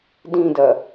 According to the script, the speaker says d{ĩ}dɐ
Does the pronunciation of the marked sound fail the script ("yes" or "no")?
no